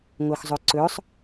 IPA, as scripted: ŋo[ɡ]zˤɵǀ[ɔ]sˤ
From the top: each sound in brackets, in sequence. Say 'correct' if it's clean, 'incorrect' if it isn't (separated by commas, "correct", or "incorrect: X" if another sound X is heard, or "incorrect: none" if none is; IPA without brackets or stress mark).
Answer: incorrect: x, incorrect: ɵ